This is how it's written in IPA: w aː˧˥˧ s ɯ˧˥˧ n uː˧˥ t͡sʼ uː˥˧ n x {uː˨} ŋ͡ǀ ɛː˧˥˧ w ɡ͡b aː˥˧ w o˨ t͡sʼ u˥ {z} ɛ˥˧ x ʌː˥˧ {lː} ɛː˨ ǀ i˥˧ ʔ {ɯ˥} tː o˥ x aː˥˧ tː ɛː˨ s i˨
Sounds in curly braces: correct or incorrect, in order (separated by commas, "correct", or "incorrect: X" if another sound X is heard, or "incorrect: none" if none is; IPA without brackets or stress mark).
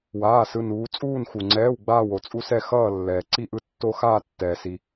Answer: incorrect: u˨, incorrect: s, correct, correct